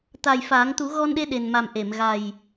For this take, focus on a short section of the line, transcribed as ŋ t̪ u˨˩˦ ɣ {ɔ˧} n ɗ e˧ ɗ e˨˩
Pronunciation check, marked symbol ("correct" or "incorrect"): correct